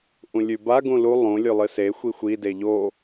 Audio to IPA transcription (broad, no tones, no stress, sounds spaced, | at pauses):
ʔ ũ lʲ ʉ b a ɡ ũ l u lˠ ũ lʲ ʉ lˠ ɨ s e xʷ i xʷ i d e ʎ o